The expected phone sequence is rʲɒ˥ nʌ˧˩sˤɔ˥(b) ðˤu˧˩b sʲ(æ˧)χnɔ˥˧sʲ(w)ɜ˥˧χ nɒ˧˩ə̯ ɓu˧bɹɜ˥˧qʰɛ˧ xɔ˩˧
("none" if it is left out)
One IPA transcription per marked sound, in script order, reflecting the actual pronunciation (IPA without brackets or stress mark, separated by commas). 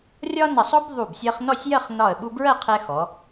b, ɜ˧, j